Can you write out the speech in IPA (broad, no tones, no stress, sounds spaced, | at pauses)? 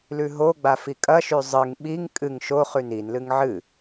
l ʉ ɦ o ɡ͡b a f i kʼ ɐ ʃ ʉ zˤ ɨ ŋ ɓ i ŋ kʼ ɨ ŋ ʃ o χ ʉ n i n l ɨ ŋ ʕ ɨ